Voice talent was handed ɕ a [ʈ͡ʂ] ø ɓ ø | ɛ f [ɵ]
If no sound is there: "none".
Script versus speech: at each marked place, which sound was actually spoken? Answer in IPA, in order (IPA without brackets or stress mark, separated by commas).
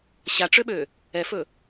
ʈ͡ʂ, ɵ